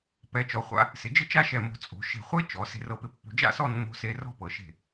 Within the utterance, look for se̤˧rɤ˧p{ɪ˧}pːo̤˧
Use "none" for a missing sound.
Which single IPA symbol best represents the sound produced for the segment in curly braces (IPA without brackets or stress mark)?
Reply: ɪ˧